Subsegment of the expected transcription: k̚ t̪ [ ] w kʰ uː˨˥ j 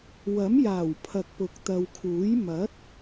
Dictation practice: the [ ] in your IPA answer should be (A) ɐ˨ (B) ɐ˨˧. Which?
A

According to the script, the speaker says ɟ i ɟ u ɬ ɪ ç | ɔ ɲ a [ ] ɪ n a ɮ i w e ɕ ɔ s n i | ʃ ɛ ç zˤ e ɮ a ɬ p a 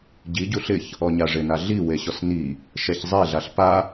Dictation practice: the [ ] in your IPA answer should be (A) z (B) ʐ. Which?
B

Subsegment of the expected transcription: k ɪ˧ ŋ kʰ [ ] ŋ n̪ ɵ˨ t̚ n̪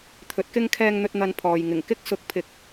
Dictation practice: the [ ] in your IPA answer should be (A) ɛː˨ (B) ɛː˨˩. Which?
A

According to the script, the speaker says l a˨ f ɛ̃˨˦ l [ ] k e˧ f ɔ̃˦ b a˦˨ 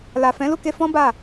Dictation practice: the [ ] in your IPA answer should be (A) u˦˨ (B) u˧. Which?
A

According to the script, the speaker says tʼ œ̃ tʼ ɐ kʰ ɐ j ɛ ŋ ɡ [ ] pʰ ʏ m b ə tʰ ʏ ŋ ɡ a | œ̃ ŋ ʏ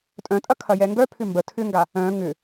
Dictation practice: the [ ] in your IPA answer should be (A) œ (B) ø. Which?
A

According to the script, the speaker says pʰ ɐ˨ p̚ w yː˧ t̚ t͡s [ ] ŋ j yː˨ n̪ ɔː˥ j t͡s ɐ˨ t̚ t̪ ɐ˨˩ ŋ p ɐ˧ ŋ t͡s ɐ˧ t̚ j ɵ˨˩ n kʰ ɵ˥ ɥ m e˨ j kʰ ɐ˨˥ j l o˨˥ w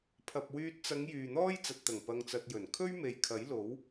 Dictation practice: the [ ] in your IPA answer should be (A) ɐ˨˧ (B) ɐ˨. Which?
A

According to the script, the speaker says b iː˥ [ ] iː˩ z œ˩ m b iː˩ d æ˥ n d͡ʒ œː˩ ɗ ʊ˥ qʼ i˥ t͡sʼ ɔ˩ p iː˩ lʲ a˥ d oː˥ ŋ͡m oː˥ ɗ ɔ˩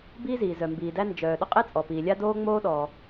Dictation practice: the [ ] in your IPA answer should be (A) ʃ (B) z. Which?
B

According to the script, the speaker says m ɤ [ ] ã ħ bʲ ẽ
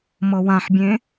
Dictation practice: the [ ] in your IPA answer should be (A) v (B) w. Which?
B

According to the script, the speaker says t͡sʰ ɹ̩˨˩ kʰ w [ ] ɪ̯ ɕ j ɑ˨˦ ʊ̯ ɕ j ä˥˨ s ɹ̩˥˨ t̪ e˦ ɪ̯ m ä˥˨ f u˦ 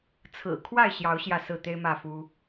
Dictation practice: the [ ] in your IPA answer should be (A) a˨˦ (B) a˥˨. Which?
B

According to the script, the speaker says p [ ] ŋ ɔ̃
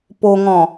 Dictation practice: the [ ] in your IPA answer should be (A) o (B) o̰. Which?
A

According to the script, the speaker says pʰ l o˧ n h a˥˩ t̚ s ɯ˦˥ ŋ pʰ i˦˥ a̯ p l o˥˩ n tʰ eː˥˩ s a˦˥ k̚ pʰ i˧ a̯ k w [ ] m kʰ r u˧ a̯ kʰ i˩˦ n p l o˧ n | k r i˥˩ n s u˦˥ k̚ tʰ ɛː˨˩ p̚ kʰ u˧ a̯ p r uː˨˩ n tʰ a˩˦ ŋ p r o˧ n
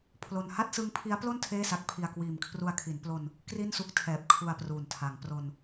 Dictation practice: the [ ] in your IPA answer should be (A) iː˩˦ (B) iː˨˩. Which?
B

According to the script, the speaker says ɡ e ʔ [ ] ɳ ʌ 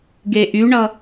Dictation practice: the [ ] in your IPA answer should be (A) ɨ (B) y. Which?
B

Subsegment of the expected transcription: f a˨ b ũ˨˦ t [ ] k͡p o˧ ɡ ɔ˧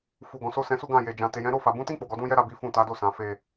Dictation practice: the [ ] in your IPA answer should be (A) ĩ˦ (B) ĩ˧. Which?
A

